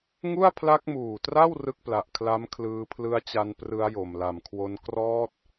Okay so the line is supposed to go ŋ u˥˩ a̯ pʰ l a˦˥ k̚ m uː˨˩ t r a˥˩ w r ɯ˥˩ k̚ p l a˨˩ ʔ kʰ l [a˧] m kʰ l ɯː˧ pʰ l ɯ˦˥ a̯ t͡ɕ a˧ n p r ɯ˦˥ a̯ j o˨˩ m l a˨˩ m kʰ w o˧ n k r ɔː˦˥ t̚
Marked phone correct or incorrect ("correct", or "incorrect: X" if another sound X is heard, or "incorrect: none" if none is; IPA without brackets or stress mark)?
incorrect: a˦˥